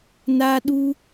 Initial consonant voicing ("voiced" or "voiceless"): voiced